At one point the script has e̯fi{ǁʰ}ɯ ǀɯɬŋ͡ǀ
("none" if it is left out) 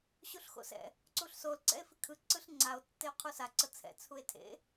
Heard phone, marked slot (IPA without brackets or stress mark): kʰ